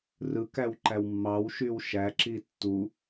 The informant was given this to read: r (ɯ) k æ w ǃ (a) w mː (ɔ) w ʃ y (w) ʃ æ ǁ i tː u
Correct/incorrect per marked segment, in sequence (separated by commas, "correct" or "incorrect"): correct, incorrect, incorrect, correct